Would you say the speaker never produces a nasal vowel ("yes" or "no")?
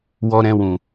no